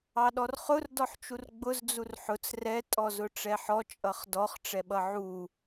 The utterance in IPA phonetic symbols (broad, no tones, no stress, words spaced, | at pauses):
ɑɗɔrχʊr dɔħt͡ʃurɡ͡bʊz d͡zurħʊt͡s rɛ tʼɔzʊʈ͡ʂɛħɔ t͡ʃʼʌχdɔχ ʈ͡ʂɛɓʌʕu